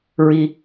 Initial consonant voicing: voiced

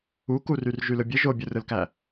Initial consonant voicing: voiceless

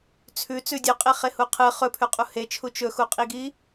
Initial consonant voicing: voiceless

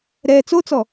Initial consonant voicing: voiced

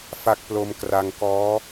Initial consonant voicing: voiceless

